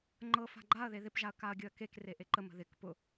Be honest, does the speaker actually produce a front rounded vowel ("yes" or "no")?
no